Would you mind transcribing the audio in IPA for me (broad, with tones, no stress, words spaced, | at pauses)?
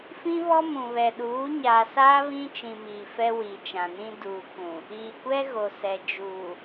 fĩ˦βɔ˦mũ˨βɛ˨ ɗuː˨˦ɲaː˨saː˦ βĩ˦t͡ʃĩ˨ miː˨fɛ˦ wi˨t͡ʃã˨nĩ˦ duː˨kʷũ˨ | iː˨kʷɛ˦ ɣo˨sɛ˨ d͡ʒuː˨